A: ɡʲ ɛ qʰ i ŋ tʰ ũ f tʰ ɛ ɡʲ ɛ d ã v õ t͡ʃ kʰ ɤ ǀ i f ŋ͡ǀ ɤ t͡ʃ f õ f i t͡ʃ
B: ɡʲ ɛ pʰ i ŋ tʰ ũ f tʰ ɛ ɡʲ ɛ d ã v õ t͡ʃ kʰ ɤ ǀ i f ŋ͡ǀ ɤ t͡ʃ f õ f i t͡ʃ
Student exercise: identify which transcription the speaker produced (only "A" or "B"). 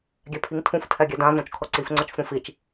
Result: B